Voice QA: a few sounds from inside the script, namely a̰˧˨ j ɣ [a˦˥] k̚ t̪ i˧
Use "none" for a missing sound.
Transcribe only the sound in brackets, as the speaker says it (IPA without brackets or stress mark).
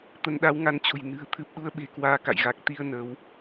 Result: a˨˩